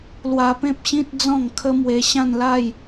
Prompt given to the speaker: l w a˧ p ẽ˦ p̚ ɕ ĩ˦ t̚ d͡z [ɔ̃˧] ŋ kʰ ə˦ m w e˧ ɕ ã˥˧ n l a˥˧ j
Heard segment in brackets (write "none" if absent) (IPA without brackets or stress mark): ɔ̃˥˧